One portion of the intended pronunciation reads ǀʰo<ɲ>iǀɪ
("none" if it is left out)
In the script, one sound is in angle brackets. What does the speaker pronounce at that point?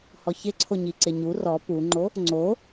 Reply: ɲ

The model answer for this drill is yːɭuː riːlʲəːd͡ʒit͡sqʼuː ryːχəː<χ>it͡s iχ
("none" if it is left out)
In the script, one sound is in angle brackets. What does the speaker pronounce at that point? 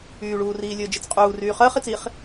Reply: χ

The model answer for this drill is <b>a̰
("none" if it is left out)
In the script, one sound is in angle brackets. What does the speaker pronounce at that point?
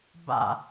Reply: b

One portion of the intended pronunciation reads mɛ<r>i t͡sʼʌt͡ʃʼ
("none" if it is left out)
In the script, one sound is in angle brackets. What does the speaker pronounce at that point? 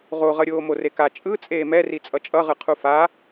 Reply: r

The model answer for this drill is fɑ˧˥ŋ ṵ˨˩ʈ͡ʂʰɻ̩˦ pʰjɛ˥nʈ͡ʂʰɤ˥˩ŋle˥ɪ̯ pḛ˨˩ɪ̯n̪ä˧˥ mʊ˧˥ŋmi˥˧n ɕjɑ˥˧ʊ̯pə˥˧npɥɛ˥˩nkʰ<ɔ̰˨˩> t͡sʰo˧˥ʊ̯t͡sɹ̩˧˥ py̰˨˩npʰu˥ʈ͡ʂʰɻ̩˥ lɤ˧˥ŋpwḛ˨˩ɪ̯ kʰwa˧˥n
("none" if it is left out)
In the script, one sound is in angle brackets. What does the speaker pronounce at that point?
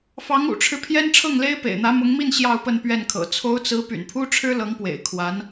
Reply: ɤ̰˨˩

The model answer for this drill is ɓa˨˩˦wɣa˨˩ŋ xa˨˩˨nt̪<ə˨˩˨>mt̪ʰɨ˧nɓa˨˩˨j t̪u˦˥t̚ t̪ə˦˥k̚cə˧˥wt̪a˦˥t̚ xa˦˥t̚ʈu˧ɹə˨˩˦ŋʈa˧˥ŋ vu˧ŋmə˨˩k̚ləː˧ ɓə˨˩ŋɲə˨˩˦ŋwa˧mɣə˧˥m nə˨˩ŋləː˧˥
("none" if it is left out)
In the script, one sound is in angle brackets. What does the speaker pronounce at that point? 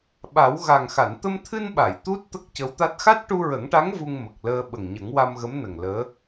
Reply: ə˧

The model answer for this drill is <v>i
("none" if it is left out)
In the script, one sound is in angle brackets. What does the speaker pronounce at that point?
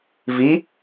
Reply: v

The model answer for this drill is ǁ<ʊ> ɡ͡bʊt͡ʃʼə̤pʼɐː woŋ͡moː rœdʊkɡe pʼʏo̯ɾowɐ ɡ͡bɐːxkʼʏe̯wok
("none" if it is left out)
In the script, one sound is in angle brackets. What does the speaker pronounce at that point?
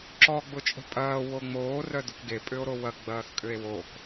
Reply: ɔ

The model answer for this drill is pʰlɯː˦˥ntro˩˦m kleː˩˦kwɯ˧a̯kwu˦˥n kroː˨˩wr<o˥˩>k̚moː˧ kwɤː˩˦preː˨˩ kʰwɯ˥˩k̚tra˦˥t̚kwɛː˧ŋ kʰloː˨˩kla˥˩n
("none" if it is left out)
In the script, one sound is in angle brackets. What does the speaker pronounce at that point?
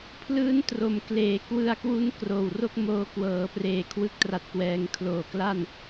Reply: o˥˩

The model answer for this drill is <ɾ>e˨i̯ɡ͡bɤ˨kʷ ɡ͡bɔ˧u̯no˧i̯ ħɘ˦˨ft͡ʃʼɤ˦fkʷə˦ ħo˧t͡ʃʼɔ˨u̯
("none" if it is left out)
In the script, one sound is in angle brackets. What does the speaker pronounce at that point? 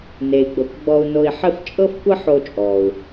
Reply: n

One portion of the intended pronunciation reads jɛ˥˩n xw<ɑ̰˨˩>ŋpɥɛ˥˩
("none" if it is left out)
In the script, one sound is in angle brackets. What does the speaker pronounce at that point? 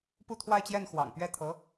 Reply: ɑ̰˨˩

